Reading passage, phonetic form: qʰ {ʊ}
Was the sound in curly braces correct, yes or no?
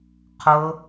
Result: yes